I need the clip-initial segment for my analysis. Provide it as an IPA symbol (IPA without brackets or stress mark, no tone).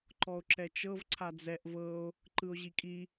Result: ǃ